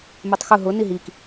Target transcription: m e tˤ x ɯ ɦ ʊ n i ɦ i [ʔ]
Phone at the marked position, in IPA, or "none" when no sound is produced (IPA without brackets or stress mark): k